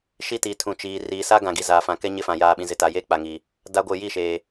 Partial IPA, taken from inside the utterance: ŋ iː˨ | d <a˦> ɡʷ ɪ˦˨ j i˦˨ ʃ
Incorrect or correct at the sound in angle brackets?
correct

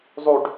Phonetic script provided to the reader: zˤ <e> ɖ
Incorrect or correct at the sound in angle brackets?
incorrect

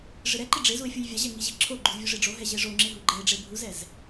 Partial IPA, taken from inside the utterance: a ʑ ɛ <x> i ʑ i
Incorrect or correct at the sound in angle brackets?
incorrect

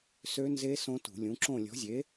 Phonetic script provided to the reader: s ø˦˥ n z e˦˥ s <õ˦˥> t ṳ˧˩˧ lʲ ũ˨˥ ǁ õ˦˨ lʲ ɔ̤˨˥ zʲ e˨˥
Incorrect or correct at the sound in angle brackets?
correct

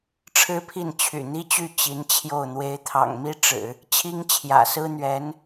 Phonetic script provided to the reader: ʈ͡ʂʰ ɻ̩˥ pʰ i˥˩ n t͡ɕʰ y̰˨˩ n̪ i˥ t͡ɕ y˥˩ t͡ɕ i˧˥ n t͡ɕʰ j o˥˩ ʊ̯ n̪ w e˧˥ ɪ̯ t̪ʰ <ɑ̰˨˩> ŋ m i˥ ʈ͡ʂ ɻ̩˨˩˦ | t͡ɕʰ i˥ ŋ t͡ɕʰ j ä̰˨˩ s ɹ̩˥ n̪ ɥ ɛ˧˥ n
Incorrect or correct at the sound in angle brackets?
correct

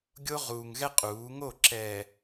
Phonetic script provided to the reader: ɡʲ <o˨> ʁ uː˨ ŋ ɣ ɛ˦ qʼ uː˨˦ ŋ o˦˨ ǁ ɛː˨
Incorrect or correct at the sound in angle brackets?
incorrect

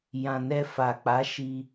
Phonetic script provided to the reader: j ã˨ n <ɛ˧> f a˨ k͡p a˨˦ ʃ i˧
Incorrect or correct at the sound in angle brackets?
correct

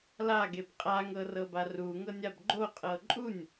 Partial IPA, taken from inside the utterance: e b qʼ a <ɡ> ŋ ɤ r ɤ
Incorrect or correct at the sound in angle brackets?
incorrect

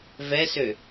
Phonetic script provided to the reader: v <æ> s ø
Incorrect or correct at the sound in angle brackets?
incorrect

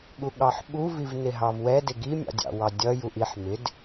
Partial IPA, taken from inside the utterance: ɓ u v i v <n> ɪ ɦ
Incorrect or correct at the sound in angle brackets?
correct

